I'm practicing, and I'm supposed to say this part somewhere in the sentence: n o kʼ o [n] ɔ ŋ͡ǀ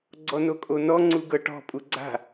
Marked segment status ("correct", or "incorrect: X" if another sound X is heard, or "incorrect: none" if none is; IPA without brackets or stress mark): correct